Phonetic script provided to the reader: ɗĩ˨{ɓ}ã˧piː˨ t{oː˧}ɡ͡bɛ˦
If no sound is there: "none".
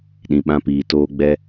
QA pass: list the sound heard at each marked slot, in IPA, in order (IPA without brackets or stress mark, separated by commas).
ɓ, oː˧